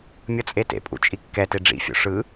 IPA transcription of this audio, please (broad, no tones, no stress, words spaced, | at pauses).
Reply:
mʲʌt͡sʼetḛpʼṵ t͡ʃʼikːɛte ɖ͡ʐḭfʲo̰ ʂɯ